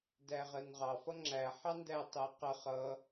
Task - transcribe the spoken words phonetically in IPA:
d æ ʁ ɜ n ʁ ɑ f ʌ ŋ͡ǁ æ ħ ɑ n d æ tˤ ɜ q ə χ ʌ

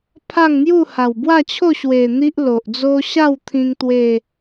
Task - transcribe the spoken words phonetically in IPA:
pʰ a˥˧ ŋ n̪ j u˥˧ h a˨˩ w b w a˥˧ t͡ɕʰ o˥˧ ɕ w e˨˩ n̪ i˦ ʔ l o˨ ʔ d͡z o˦ ɕ a˥˧ w t̪ʰ ĩ˧ ŋ t̪ w e˥˧

